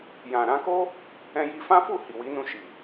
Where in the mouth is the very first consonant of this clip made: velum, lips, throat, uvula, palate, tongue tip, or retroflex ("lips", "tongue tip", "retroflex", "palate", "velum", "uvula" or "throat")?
palate